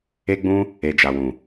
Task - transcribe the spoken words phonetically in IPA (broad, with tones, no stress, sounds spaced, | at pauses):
e˦ ɡ͡b ũ˦ | e˨ d͡ʒ a˨ w ũ˨